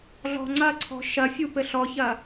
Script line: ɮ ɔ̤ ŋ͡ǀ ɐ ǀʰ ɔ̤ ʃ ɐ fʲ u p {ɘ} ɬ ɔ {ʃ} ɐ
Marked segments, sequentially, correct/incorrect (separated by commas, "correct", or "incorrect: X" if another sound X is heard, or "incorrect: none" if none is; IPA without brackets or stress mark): correct, incorrect: ç